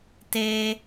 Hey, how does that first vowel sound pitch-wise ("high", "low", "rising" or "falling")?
high